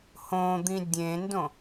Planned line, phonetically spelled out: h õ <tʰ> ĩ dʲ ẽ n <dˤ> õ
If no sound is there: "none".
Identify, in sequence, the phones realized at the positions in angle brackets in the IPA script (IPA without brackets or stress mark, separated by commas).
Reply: d̪, d